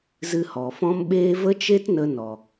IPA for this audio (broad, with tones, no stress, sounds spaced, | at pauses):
z ɨ˧ h ɔ˨ f ɔ̃˦ m ɓ eː˦ v ə˦ t͡ʃ e˦ t n ə˦ n ɔ˨